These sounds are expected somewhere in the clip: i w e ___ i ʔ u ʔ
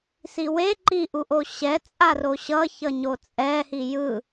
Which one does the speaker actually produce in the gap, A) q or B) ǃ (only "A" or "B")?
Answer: B